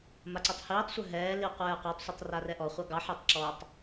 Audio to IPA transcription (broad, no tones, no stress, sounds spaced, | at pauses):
m a ǀ ɛ tˤ h iː tˤ sʷ œ ɦ ɛː l i qʷ ɛː qʷ ɑ tˤ sʷ i tˤ r a r ɛ ʔ ɔ χʷ ɑ ɡ ɑ ħ ɛ tˤ ǁ ɔ tˤ